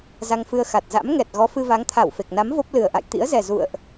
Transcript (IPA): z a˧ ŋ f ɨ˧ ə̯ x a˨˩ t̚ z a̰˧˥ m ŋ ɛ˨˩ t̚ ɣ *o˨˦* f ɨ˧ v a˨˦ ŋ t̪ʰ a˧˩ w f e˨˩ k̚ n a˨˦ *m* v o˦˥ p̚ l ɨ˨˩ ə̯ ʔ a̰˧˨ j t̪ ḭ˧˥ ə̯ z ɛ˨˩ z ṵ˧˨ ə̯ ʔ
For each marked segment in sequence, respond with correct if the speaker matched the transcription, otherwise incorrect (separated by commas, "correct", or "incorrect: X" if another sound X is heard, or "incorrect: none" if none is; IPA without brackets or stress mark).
incorrect: ɔ˨˦, correct